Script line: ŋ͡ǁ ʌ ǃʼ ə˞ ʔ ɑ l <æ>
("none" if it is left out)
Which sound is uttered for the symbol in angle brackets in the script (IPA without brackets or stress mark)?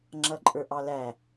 æ